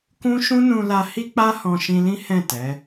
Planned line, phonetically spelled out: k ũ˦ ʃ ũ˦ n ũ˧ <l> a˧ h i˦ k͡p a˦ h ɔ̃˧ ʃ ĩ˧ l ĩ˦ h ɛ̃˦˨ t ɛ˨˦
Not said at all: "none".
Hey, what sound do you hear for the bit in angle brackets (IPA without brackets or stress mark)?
l